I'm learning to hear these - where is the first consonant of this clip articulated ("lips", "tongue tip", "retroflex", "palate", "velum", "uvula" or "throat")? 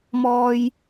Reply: lips